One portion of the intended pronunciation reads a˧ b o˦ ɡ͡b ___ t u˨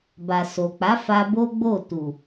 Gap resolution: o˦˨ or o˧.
o˦˨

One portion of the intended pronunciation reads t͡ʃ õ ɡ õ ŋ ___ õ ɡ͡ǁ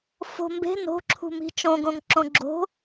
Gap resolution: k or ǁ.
ǁ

